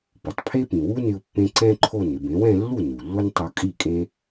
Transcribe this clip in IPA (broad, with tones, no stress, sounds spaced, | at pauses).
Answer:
p ʊ˩ tˤ pʰ e˥ p ĩ˩ w u˥ n ɪ˧ ʊ̯ pː ẽ˧ ǀ ɛ̃˥ ǃʰ o˥˩ n ɪ˥˩ b ẽ˩˥ w ɛ̃˧ lː u˥˩ n u˩ lː ʊ˥ n tˤ o˧ kʼ i˥˩ kʼ ẽ˥